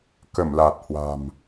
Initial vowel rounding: unrounded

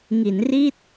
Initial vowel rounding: unrounded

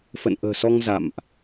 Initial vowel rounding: unrounded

